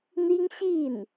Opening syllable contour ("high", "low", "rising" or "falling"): high